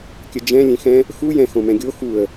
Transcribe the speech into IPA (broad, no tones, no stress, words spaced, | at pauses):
kʲəd͡ʒɛ̃ lʲẽxɛ̃ | xu jɛ̃ xõmɛ̃ɡʲo xuə̯